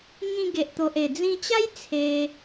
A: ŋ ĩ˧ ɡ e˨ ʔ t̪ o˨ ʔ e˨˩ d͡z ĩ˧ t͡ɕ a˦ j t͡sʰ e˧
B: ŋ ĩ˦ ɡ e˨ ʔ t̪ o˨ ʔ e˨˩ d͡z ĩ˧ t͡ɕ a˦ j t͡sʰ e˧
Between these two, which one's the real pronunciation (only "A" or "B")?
A